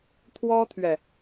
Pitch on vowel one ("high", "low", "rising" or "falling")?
high